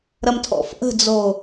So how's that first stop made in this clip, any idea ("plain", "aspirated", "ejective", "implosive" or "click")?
aspirated